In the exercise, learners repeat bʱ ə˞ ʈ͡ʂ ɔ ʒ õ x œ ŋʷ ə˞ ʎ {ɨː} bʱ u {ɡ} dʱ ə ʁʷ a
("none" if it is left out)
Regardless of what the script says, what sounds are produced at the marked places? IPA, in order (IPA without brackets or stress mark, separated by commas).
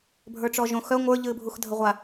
ɨː, x